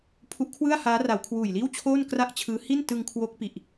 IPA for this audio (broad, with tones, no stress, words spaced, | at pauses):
pʰu˦˥ʔkʰwɯ˥˩a̯ haː˦˥ra˩˦w kʰwuː˨˩jliː˥˩wt͡ɕʰoː˥˩n kra˥˩ʔt͡ɕʰɯː˦˥ hi˥˩n tɯ˧ŋkʰwo˦˥k̚pi˨˩ʔ